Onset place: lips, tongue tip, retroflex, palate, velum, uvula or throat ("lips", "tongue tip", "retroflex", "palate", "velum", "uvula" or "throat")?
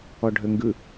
retroflex